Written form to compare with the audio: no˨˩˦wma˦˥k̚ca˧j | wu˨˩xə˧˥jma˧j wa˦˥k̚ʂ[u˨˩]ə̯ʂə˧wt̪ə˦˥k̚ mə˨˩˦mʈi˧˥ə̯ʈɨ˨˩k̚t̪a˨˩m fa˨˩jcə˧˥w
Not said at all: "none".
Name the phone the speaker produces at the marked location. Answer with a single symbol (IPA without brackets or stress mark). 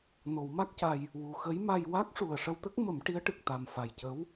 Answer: u˨˩